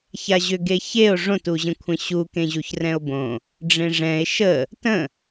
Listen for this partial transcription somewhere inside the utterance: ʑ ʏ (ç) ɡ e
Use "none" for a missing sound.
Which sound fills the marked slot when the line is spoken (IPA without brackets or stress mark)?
none